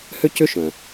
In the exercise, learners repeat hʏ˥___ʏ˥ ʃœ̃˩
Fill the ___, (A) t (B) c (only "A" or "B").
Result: B